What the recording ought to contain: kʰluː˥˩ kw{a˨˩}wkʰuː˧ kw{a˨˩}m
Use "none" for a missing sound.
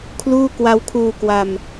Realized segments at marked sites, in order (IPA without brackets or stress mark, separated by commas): a˦˥, a˧